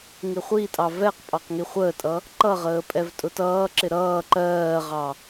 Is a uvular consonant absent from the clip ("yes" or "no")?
no